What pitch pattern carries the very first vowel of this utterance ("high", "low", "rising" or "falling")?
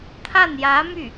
falling